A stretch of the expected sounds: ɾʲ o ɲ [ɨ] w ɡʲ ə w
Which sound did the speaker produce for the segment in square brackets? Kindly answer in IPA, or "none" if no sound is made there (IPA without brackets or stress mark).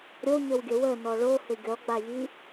ə